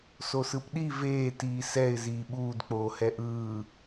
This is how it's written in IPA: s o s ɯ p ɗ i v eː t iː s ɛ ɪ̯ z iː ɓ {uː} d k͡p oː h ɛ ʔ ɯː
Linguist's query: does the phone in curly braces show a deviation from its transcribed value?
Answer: no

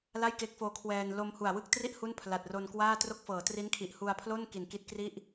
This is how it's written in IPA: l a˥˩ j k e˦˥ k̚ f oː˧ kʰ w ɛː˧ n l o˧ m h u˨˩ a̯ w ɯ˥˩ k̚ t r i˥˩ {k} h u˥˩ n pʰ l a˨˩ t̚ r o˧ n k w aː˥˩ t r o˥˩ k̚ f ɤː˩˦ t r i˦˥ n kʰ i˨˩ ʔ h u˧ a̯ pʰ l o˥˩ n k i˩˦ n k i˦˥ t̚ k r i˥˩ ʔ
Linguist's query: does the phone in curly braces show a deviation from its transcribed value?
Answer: yes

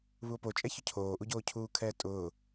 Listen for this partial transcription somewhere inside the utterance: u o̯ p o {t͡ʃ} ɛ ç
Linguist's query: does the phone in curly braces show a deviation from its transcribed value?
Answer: yes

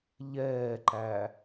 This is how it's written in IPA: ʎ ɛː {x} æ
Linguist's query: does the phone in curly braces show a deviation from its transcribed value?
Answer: yes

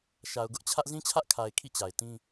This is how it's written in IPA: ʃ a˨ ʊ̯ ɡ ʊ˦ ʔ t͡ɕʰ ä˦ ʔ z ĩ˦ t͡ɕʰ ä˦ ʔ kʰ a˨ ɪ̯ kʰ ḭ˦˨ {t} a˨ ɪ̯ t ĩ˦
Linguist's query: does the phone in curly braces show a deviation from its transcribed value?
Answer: yes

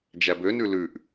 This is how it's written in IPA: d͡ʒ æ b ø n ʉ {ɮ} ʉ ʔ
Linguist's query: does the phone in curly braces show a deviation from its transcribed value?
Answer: yes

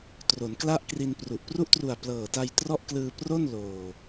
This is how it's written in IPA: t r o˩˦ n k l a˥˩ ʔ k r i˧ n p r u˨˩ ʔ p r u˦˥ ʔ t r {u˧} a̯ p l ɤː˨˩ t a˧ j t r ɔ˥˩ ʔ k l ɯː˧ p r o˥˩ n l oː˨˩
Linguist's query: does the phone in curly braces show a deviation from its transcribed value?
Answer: yes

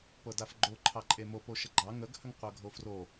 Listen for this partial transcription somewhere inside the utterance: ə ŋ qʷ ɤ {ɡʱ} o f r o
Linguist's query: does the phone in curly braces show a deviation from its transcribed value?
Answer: no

